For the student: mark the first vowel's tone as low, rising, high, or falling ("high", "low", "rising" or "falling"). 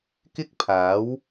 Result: high